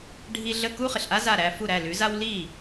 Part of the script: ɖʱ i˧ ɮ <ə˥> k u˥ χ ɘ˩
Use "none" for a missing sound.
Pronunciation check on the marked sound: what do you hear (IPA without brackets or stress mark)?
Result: ə˥˩